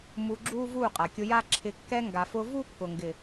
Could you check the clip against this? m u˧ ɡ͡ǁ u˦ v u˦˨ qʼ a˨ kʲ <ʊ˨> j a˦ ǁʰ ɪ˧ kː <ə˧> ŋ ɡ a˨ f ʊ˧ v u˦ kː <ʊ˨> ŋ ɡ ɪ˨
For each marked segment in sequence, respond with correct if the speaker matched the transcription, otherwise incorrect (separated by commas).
incorrect, incorrect, correct